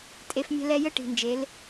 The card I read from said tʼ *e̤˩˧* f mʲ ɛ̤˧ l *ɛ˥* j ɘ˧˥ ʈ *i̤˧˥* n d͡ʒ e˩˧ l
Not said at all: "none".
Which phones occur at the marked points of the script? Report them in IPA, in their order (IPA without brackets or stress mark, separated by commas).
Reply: e˩˧, ɛ˧, i̤˩